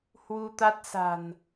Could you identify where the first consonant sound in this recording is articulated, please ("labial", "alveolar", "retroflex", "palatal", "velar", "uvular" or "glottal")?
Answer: glottal